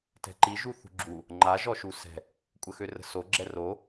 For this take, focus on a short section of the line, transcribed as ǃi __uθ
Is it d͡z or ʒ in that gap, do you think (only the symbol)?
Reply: ʒ